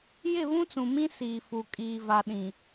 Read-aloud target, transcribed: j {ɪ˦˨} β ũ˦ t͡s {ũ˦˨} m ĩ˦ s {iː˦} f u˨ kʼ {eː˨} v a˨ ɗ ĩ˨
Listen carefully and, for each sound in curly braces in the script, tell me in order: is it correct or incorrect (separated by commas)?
correct, incorrect, incorrect, incorrect